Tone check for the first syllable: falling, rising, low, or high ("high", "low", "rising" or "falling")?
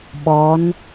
rising